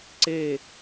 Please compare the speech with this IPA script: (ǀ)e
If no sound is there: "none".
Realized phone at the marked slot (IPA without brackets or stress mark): ǀ